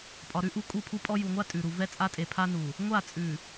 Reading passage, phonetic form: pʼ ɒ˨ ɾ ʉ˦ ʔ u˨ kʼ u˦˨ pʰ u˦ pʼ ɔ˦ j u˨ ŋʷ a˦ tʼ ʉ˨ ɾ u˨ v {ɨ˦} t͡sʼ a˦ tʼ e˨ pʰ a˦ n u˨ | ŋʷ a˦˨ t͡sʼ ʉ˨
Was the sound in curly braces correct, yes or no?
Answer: no